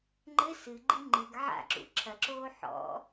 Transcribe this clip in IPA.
ŋ͡ǃ ɘ s ɨ ɡ͡ǃ i ŋ͡ǃ ɨ ɡ ʕ a̰ ǁ ṵ ǁʰ ɐ ǁ oː ħ ɔ̰

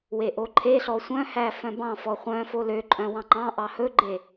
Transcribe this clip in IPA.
w e ʔ o ǃʰ e ɬ ɔ sʷ œ̃ h æ f œ̃ b ɑ̃ f ɔ χʷ œ̃ f o l ø ǃʼ œ̃ w ɑ̃ ŋ͡ǃ ɑ̃ ʔ ɑ h ɵ ɡ͡ǃ e

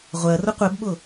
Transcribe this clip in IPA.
ʁʷ ɜ r ʊ qʷ ɛ b ɓ ʊ

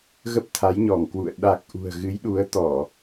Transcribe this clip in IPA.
ɣ ə˦˥ p̚ t̪ʰ a˨˦ j ɲ ɔ˧˩ ŋ k w ṵ˧˨ ə̯ ɗ a˨˩ k̚ ʔ ṳ˨˩ ə̯ ɣ ɨ˨˦ j ɗ u˨˦ ə̯ t̪ ɔ˧˩˨

